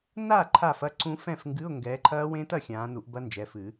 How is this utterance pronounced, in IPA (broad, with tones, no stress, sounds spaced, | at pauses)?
n a˥˨ ǃʰ a˥˨ f ɐ˧˥˧ ǀ ũ˦˥ f ɛ̃˥˨ f ŋ ɡ ɨ˧˥˧ ʊ̯ ŋ ɡ ɛː˨˦ ǃʰ ɐː˦˥ w ẽ˦˥ t ɐ˥˨ xʲ ãː˨˦ n u˨˩˦ ʔ b ɐ˦˥ n d͡ʒ ɛ˩˧˩ f ɨ˨˩˦